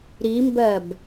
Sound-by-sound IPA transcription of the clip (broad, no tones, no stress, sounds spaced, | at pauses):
ɾ i m b ɜ b